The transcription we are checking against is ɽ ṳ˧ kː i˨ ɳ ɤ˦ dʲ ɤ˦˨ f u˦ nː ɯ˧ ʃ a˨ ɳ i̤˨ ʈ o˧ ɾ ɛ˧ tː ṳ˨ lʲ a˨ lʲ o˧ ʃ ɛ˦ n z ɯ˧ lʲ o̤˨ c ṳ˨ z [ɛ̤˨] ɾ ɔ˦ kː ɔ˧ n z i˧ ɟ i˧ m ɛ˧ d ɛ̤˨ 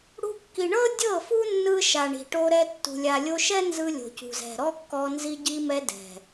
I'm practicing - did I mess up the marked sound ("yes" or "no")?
no